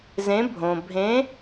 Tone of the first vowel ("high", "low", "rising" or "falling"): rising